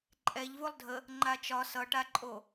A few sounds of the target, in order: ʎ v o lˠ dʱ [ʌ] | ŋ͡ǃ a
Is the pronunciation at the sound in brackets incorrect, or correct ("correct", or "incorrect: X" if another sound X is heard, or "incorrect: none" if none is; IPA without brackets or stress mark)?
incorrect: ə